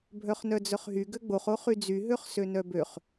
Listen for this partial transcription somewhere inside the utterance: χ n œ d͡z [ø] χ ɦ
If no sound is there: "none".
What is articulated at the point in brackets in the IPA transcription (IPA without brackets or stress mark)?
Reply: œ